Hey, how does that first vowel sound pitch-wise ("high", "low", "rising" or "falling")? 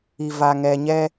low